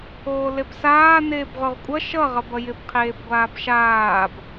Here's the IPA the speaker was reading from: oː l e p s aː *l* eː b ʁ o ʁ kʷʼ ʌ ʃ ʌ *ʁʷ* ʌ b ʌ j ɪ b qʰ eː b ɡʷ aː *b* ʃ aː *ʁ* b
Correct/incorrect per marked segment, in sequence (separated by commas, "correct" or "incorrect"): incorrect, incorrect, correct, incorrect